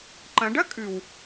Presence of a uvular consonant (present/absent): absent